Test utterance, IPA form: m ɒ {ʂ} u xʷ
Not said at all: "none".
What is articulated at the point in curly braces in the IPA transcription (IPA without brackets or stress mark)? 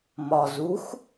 z